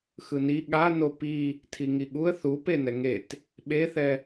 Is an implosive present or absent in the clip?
present